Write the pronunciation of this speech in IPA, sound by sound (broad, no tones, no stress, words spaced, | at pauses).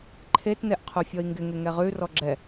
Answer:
ǃʰetnɛʔqʰufʲɔi̯ ŋɡɪŋeŋɛ ʁʉrɔ ɡ͡ǁɛ